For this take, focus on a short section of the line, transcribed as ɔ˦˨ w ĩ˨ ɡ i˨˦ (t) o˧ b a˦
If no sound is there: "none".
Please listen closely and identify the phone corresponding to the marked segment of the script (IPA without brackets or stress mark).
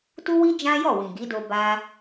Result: d